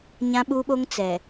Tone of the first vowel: high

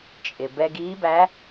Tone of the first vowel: low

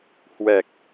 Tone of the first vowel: low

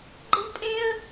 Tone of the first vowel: high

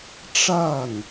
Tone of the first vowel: falling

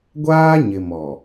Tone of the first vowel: high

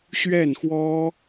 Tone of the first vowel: falling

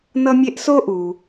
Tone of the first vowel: high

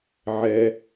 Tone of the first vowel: low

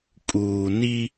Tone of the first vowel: low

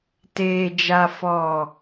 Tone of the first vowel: low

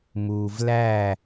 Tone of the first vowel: low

